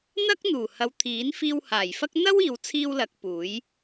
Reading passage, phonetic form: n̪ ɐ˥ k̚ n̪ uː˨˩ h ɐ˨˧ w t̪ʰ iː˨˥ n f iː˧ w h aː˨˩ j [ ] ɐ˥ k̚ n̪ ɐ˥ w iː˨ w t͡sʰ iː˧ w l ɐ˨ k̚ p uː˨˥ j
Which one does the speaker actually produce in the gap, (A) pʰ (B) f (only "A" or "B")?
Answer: B